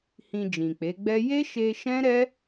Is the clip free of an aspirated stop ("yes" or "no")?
yes